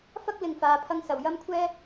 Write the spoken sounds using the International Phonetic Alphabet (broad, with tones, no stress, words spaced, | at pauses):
fɐ˥k̚ lɪ˨ŋfaː˨˧pʰɐ˧ŋ sɐ˨wjɐ˥mkʷʰɛː˥